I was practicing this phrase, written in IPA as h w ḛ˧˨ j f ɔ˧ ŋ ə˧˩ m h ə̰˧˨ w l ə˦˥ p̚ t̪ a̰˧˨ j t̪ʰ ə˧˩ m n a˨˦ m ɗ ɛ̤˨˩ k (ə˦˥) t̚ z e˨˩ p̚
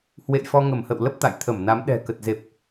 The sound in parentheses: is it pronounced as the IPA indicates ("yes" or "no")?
no